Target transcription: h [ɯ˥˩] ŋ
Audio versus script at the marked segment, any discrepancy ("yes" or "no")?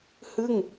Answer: no